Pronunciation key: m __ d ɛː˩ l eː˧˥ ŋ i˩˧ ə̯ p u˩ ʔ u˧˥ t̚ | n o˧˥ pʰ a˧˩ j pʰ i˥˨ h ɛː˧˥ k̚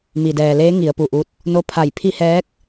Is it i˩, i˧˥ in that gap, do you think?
i˩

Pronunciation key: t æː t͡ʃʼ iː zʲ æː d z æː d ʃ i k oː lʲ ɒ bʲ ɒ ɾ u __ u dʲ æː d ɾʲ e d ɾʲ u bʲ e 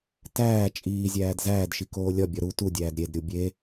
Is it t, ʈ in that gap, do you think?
t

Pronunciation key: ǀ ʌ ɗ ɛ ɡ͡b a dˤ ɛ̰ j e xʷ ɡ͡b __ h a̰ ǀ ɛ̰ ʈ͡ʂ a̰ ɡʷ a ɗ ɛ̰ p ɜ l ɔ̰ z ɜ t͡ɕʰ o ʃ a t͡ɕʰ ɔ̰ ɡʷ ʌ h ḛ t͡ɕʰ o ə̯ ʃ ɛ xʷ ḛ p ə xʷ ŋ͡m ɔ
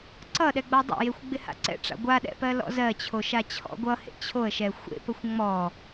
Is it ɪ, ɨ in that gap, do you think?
ɪ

